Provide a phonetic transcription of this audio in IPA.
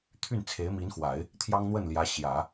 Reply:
t̪ʰy˥˩nt͡sʰe˧˥ɪ̯mi˧˥nxwa˨˩˦ɪ̯ | t̪ʰjɑ˥ŋn̪wə˥˩nljä˧˥ ɕjä˨˩˦

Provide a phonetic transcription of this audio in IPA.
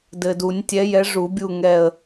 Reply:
dɘ˨du˨˩˦nʲtʲɛ˨˥jɛ˨˥ ʐu˨˩˦bʲu˦˨ŋɛ˦˨ə̯

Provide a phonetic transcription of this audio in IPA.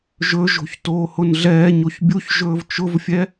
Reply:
ʒɵʒo̤ç toːhʊnɮɛːɲoç bʲuçʒɵːv t͡ʃʊvfʲɛ

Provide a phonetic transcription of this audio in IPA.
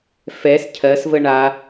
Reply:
fɛs cʰɜsvə ɳa

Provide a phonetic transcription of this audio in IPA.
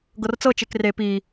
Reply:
ɡɤrt͡sɤt͡ʃek re pi

